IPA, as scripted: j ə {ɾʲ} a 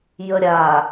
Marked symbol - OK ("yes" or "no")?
yes